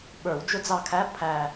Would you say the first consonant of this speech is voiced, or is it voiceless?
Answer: voiced